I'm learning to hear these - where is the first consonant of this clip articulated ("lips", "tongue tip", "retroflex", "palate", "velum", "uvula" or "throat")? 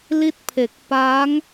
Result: tongue tip